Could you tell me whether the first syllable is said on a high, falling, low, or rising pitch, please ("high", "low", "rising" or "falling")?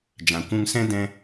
low